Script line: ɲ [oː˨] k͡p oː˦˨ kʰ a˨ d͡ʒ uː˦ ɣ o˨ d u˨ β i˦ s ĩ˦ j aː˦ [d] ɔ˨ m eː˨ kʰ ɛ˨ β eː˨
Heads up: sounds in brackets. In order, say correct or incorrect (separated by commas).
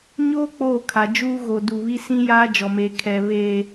incorrect, incorrect